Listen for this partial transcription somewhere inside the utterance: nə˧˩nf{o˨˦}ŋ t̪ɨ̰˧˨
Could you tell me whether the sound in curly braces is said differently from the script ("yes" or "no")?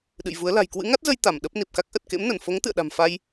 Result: no